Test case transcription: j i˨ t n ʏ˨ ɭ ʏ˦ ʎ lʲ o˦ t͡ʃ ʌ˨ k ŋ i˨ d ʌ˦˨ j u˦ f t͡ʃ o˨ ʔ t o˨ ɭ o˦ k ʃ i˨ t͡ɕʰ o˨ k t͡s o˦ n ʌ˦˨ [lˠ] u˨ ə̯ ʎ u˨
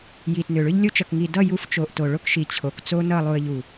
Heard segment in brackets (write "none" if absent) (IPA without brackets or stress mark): lˠ